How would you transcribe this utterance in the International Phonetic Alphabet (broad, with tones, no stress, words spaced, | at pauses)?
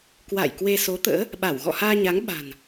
kwa̰ː˧˨jkwe˧ so˨˦t̪ə̰ː˧˥ | ɓa˧˩w ɣɔ̰˧˨haː˧ɲa˨˦ŋ ɓa̤˨˩n